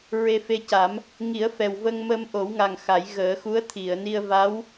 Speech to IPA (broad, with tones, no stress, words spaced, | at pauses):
ɹe˧fe˧ca˨˩˦m | ŋi˨˩˦ə̯fɛ˨˩wvə˧ŋ mə˧mʔo˨˩˦wŋa˨˩ŋ xa˨˩˦j ɣəː˨˩˦xu˧˥ə̯t̪ʰi˨˩˨ə̯ ni˧ə̯va˧˥w